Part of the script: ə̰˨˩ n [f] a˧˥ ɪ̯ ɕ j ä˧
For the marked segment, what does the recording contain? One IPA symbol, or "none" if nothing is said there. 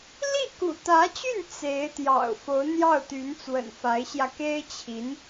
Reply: f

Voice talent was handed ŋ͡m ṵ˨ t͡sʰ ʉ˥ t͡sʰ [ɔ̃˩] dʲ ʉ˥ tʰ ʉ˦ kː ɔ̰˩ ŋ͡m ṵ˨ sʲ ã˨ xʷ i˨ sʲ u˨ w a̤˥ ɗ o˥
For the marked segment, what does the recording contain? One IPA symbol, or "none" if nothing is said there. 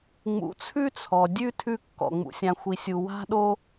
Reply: ɔ˩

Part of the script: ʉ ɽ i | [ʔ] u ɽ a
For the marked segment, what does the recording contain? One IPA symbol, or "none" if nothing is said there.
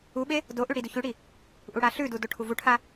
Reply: ʔ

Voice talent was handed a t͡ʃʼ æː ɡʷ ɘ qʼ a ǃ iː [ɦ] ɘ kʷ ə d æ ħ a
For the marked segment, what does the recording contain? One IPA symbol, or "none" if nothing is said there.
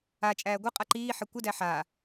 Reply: ħ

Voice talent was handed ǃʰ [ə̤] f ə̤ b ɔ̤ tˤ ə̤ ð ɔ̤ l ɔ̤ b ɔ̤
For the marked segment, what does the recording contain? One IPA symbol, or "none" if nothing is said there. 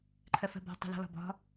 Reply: ə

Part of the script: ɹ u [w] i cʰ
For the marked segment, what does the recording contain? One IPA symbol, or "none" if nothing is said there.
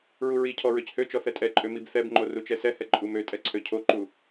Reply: ɹ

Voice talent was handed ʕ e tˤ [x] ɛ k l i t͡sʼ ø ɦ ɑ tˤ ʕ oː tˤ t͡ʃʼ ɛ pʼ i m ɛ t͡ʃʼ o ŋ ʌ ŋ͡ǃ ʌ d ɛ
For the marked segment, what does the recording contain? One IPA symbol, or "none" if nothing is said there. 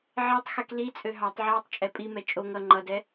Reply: x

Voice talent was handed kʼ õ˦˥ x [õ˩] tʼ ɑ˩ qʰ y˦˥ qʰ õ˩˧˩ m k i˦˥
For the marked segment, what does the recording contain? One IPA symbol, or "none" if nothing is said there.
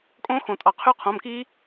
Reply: õ˩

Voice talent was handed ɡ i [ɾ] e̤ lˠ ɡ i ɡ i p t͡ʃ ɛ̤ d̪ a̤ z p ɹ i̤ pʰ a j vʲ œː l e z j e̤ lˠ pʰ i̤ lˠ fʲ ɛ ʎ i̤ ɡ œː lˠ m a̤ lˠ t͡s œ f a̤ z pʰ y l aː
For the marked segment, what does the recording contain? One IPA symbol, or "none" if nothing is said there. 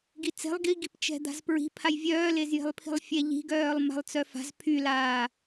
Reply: t͡s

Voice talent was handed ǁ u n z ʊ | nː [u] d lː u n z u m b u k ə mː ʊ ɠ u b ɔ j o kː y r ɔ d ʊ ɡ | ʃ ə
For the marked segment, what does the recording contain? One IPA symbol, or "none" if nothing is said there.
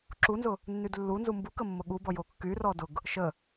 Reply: y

